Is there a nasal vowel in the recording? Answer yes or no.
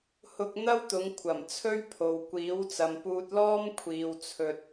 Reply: no